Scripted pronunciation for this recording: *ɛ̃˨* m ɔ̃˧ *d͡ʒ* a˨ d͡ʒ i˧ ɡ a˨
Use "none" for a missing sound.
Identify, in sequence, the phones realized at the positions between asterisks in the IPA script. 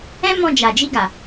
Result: ɛ̃˦, d͡ʒ

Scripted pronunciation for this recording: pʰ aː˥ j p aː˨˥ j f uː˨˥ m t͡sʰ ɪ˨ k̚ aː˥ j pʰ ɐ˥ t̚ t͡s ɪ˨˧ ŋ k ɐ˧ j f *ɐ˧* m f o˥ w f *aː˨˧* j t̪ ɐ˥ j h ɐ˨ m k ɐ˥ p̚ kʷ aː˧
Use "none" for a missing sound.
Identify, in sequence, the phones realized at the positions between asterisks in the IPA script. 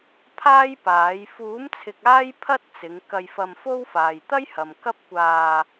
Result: ɐ˧, aː˨

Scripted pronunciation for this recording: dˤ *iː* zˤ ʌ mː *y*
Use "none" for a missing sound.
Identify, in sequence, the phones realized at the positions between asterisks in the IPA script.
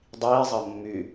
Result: iː, y

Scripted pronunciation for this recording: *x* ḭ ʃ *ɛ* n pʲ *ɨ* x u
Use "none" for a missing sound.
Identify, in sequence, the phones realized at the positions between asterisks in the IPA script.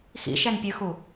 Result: x, ɛ, ɨ

